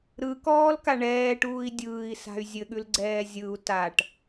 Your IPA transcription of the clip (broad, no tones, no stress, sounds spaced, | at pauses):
ɾ ɯ k ɔː l k a ɳ ɛː ʈ uː i̯ dʲ ɯː i̯ s a̤ y̯ zʲ ɘ ɠ ʉ l ɡ͡ǀ ɛː zʲ ɯ u̯ t a ʈ